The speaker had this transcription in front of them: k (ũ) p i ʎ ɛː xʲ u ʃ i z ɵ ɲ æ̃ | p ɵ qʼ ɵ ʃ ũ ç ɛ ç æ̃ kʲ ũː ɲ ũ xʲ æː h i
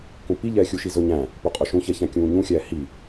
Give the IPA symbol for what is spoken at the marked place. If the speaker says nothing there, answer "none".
ũ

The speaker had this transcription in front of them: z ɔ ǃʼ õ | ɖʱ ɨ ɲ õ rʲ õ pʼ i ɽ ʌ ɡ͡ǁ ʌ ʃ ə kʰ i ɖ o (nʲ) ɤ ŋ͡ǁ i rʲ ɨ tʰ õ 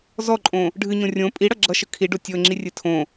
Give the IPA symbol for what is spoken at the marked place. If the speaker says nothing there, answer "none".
tʲ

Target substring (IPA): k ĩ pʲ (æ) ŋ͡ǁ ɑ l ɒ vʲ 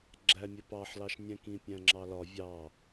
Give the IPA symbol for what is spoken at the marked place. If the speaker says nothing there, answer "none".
æ̃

